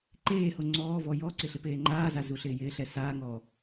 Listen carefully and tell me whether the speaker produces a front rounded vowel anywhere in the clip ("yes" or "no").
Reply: no